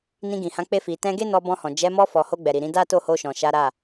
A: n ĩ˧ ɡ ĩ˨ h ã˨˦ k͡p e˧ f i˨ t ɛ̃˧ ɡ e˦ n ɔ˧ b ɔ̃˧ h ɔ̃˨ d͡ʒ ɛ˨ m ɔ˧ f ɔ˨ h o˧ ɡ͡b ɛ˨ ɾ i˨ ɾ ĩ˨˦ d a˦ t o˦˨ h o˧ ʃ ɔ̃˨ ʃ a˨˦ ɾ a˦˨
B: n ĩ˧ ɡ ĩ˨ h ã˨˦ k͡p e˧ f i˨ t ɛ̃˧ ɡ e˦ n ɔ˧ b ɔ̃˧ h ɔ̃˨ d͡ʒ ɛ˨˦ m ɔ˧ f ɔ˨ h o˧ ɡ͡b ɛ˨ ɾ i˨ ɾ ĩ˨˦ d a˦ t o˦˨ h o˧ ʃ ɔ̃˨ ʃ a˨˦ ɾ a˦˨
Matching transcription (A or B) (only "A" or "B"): B